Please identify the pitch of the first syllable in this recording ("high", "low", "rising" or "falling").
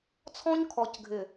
high